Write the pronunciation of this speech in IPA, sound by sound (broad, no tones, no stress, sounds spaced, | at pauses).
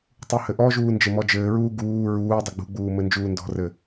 tˤ u h ɘ ʔ ɔ ʒ uː n d͡ʒ ɘ m ɔ d͡ʒ ɘː ɹ uː ɡ uː ɹ uː dˤ ʌ ɡ͡b ṳ ɡ͡b uː m ɘ n d͡ʒ uː n d ɔ̤ r ɘ